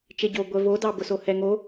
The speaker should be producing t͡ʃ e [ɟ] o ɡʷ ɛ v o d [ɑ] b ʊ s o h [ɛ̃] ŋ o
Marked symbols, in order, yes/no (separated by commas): yes, yes, no